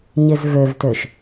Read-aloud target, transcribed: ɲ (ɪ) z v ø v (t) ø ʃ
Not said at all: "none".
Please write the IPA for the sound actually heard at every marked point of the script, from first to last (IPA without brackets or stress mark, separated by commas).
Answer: ɪ, t